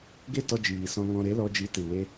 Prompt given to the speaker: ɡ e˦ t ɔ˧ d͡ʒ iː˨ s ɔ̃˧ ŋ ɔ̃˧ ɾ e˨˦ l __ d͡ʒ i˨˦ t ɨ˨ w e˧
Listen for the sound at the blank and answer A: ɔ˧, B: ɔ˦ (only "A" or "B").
A